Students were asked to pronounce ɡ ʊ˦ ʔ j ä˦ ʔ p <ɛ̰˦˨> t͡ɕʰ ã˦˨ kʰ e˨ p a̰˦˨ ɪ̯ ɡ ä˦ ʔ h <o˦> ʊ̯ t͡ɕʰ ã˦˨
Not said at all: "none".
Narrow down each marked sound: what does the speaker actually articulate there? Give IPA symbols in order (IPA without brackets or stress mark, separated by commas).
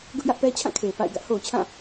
ɛ˦, o˨